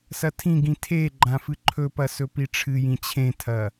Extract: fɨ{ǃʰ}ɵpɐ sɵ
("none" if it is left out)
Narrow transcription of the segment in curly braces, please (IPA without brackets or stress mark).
ǃʰ